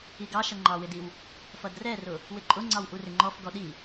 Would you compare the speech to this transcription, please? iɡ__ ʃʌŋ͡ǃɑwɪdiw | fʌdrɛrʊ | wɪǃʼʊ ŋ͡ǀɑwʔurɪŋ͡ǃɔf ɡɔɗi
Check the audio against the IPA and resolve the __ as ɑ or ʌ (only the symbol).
ɑ